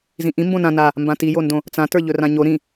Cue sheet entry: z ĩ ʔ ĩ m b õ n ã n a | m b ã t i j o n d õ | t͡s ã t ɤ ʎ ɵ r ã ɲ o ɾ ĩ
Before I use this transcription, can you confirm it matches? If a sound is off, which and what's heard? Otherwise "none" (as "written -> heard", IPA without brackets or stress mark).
ɤ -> ə˞